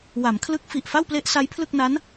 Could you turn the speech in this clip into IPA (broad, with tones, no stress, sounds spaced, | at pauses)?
w a˩˦ m kʰ l ɯ˦˥ k̚ f i˨˩ ʔ f a˥˩ w p l e˦˥ ʔ s a˦˥ j pʰ l ɯ˥˩ k̚ n a˦˥ n